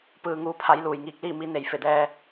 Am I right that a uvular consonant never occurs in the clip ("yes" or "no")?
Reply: yes